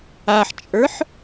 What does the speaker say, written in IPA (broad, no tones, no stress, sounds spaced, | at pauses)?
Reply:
a ħ t͡ʃʼ ə˞ ħ